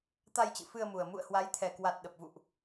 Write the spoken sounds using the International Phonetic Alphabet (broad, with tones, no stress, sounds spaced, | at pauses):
t̪ a˧ j t͡ɕ ɨ̰˧˨ f ɨ˧ ə̯ m u˨˩ ə̯ m ṵ˧˨ ə̯ h w a˨˦ j t̪ʰ ɛ˨˩ k w a˨˩ t̚ ɗ ə˨˩ p̚ v ṵ˧˨ ʔ